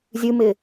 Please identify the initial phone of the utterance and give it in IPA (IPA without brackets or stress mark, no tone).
zʲ